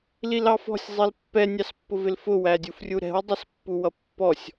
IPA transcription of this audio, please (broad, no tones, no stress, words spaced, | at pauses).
lilɑfɔ̤sʲ zˤilpːɛ nʲɑspːʊvɪlfʊ wædʲufrʲuɾɛ̤w dˤʌspːuwʌpːɔsʲ